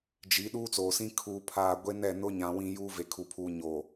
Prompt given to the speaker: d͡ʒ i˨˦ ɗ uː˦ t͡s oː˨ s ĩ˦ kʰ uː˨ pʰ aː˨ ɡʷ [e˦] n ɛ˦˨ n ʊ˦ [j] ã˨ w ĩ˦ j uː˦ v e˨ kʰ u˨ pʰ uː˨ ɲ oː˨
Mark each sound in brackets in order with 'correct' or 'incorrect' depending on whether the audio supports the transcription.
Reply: correct, incorrect: ɲ

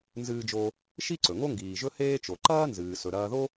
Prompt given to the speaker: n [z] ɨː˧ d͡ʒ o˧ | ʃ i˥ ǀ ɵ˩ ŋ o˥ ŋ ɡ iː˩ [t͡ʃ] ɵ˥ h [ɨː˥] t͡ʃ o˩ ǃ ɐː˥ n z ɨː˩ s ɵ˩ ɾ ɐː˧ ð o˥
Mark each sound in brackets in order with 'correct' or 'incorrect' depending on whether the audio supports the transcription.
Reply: correct, incorrect: ʒ, incorrect: eː˥

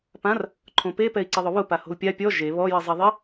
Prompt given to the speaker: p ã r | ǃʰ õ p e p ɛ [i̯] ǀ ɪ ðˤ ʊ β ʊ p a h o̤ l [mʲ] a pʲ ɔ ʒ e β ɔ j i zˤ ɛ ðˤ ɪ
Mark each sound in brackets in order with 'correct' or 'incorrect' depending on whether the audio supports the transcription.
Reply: correct, incorrect: pʲ

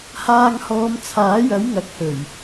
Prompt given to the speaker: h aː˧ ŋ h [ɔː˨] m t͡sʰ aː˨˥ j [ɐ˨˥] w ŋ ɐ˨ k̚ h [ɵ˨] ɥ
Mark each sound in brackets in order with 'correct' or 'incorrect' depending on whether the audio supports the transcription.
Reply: incorrect: ɔː˨˧, correct, incorrect: ɵ˨˩

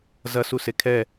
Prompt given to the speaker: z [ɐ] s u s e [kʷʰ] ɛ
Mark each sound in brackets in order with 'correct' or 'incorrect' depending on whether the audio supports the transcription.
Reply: correct, incorrect: kʰ

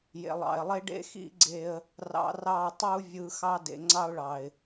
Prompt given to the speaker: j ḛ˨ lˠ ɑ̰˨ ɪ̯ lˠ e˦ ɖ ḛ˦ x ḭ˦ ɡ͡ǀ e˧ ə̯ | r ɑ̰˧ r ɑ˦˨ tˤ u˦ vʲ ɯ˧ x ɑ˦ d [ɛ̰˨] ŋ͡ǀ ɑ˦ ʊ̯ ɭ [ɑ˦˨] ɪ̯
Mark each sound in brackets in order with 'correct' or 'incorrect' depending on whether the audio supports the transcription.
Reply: incorrect: ḛ˨, incorrect: ɑ˨

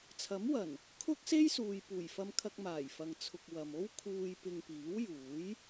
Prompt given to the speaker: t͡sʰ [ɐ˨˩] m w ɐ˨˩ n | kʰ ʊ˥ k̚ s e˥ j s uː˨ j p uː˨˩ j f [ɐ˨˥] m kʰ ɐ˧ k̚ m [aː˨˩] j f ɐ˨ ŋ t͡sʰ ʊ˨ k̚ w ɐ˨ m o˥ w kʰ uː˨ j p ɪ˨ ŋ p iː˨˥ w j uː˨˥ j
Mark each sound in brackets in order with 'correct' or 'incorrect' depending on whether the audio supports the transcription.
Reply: incorrect: ɐ˨˥, incorrect: ɐ˧, correct

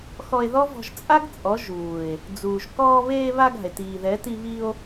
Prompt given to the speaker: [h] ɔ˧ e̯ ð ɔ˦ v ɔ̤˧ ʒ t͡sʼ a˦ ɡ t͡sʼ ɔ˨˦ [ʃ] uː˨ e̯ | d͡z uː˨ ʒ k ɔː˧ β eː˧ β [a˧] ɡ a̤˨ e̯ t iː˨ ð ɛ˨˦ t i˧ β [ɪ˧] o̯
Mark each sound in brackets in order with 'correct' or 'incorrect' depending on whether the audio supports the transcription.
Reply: incorrect: x, incorrect: ʒ, correct, incorrect: i˧

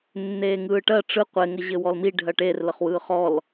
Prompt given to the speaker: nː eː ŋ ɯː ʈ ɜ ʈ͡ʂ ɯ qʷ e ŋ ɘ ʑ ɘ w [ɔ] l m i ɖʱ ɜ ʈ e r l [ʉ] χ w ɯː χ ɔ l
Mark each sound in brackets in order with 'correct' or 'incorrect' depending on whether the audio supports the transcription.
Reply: correct, incorrect: ə

